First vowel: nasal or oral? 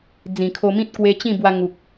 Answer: nasal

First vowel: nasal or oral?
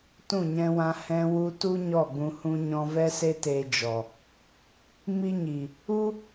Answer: nasal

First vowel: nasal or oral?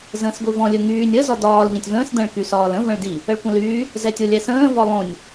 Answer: nasal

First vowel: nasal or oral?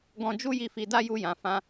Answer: nasal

